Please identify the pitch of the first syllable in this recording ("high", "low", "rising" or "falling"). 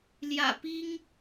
low